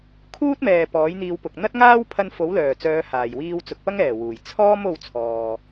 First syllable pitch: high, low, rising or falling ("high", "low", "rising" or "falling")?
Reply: high